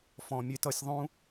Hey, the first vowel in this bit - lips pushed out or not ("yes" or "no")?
yes